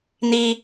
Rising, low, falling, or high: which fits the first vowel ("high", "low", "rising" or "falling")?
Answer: high